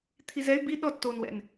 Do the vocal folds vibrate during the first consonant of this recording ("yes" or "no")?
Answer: no